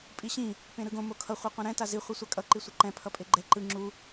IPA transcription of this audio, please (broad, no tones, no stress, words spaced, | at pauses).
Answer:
pʼiɕĩ | pẽɾɯɡõ mokʰʌ χʷaqʷãɾɛ̃ tazi χʷɛsʷakʼʌ ǃisʷʌǃɛ̃ pʰʌpʼeɡ͡ǃɛ ǃɯ ŋ͡ǁu